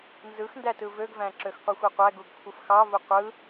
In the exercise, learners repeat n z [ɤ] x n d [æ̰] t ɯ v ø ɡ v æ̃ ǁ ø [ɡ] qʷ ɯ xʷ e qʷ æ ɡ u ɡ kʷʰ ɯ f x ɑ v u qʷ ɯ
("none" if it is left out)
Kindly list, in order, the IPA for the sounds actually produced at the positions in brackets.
ɯ, æ, x

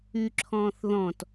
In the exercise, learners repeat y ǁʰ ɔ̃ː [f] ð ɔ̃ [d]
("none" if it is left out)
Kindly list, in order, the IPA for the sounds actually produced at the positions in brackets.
θ, t

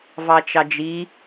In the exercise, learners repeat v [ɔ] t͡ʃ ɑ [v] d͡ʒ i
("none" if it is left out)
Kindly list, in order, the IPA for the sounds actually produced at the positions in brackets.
ɑ, none

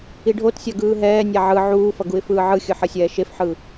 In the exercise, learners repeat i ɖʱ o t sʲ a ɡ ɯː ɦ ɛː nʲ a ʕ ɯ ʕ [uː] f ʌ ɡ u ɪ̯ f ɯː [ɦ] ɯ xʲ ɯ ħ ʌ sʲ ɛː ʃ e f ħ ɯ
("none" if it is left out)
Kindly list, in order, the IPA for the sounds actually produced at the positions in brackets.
uː, ʕ

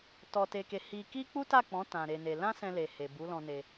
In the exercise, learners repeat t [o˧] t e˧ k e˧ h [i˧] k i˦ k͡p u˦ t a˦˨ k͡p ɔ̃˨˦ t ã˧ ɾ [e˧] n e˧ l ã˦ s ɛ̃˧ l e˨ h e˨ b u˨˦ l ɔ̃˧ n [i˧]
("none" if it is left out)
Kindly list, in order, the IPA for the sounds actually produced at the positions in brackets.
ɔ˧, i˧, e˧, e˧

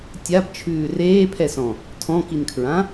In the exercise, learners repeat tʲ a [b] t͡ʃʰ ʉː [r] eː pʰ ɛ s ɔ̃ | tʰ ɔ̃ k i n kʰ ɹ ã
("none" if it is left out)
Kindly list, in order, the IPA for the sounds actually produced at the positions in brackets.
b, r

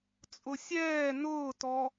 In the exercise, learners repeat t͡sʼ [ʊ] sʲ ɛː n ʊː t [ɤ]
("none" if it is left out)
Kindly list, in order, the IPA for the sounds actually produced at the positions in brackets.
ʊ, ɔ

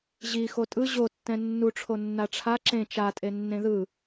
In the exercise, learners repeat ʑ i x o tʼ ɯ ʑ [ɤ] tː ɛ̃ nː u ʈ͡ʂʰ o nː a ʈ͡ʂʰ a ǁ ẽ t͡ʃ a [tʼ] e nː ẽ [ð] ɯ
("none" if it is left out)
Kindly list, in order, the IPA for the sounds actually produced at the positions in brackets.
o, tʼ, ð

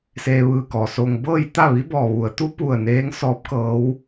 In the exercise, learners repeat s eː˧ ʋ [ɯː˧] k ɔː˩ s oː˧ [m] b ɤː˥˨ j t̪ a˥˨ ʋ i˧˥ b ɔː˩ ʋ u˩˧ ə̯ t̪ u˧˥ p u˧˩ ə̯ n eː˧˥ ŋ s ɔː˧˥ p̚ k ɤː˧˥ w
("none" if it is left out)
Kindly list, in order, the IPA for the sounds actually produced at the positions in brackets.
ɯː˧, ŋ

